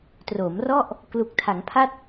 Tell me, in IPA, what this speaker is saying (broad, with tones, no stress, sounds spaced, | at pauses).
t r oː˩˦ m r ɔ˥˩ ʔ | k l u˨˩ k̚ tʰ a˩˦ ŋ pʰ a˥˩ t̚